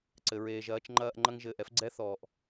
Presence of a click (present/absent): present